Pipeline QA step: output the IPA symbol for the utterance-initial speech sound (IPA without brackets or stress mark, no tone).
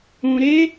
ũ